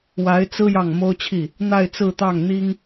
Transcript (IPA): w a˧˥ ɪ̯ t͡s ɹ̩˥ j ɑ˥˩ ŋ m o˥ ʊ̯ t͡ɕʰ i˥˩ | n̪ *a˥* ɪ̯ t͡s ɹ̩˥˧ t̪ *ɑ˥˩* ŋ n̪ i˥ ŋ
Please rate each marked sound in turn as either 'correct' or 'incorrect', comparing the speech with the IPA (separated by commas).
incorrect, correct